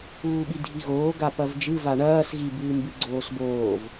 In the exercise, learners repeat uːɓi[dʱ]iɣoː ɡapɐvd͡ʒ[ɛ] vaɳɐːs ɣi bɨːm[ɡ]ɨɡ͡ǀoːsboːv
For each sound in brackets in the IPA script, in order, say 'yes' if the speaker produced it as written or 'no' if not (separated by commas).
yes, no, no